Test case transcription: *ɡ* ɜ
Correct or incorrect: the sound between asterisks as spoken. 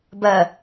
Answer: incorrect: b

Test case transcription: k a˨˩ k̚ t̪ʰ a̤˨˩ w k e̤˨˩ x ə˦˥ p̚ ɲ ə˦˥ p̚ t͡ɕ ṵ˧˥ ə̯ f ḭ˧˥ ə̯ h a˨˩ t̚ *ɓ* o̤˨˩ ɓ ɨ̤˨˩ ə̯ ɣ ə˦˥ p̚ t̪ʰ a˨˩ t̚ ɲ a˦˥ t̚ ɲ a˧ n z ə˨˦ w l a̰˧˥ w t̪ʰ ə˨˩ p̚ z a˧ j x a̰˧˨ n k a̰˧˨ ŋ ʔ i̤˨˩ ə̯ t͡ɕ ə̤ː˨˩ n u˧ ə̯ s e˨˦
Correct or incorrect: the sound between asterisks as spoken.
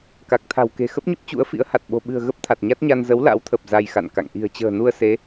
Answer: correct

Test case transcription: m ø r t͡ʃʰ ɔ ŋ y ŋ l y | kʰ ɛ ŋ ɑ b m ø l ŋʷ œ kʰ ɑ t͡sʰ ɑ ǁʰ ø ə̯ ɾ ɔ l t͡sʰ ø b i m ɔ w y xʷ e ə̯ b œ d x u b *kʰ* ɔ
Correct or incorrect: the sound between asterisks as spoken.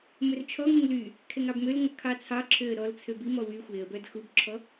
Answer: incorrect: ǁʰ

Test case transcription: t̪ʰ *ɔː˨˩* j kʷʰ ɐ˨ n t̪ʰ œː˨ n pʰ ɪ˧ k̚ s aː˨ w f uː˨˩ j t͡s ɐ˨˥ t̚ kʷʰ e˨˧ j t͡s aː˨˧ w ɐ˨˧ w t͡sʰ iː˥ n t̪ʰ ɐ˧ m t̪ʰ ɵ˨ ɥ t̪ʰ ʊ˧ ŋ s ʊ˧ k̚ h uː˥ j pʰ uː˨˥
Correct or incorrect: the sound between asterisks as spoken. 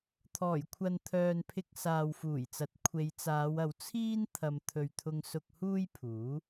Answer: correct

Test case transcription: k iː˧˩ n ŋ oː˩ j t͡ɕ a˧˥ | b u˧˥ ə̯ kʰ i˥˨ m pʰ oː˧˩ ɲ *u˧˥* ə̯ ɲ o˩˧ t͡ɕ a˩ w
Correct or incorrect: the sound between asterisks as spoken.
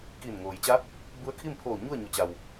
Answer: incorrect: u˥˨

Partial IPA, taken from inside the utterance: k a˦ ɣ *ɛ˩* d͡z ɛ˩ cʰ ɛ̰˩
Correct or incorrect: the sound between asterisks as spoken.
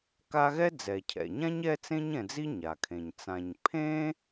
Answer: incorrect: ɛ˥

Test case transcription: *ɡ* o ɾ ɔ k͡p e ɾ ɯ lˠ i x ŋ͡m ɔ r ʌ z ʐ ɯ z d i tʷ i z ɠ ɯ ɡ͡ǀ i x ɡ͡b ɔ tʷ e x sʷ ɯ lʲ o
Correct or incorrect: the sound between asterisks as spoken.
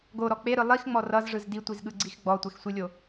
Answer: correct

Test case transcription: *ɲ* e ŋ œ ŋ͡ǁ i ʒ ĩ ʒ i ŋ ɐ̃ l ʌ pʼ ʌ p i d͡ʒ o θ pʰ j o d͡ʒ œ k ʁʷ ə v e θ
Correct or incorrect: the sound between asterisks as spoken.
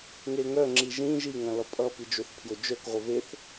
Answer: incorrect: ŋ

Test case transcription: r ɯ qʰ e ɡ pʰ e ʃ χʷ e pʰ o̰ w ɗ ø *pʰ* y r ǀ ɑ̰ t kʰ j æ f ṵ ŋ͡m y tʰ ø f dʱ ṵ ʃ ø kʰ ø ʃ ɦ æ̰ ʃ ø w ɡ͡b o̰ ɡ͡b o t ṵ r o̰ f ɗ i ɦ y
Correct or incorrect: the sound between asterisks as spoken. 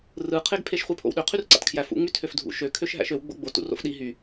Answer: incorrect: qʰ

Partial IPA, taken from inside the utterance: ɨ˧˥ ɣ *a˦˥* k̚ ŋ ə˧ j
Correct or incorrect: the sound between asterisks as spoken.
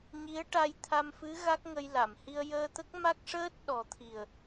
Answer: correct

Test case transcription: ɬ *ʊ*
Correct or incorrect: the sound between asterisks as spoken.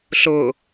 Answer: correct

